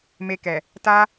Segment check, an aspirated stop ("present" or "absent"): absent